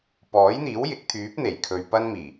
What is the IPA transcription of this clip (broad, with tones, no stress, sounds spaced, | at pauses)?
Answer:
p ɔː˨˥ j n̪ iː˨˥ w j ɪ˨˥ k̚ t̪ʰ yː˨˥ p̚ n̪ e˨˩ j kʰ ɵ˨ ɥ p ɐ˥ n m iː˨˩